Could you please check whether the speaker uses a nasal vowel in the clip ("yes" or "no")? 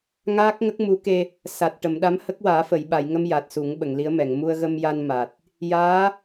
no